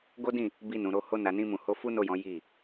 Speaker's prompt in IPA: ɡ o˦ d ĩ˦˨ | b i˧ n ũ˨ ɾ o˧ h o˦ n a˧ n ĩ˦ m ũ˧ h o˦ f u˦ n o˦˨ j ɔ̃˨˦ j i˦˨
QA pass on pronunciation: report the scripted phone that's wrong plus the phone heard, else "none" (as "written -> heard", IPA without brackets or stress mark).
none